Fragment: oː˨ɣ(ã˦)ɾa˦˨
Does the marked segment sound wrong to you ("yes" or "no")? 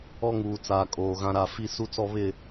no